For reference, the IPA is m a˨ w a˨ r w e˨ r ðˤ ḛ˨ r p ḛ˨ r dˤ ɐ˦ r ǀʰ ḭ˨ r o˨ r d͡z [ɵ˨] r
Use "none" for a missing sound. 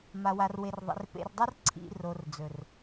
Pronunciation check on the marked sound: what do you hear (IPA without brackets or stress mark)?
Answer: ɵ˨